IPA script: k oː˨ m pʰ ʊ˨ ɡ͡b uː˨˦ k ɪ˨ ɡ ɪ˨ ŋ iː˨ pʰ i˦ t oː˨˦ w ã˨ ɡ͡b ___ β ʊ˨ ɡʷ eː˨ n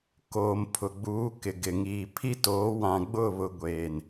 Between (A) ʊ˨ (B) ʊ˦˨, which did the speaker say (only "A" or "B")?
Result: B